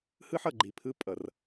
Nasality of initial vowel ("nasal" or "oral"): oral